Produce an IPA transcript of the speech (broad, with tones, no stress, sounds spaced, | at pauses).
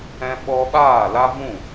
ɛ̃˦ ɓ ɔ˦ ɓ aː˦˨ l a˦ v ũ˦˨